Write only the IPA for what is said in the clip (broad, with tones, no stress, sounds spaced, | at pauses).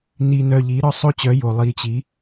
n i˧ n œ˧ ʎ i˨˦ ɾ ɔ˦ sˤ o˦ t͡ɕ œ˨˦ j o˨ lˠ i˧ t͡ɕ i˨˦